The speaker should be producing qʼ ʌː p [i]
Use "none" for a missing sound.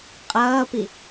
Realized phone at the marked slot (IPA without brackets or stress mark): i